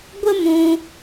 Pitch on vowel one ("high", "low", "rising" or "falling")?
high